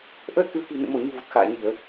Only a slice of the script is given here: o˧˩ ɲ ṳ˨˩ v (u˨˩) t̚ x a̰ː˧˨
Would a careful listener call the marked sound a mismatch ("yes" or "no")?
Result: no